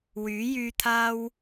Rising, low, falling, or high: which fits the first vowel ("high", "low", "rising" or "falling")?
rising